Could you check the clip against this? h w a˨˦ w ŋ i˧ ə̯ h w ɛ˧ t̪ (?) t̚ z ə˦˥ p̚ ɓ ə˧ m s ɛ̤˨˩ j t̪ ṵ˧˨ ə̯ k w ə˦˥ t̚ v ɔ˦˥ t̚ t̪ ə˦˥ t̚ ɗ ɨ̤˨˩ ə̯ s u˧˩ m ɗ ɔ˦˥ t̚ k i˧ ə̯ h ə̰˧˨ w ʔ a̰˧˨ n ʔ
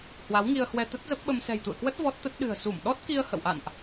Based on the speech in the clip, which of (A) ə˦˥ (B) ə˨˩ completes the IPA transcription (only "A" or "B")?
A